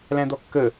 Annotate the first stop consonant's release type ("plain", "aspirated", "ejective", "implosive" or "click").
plain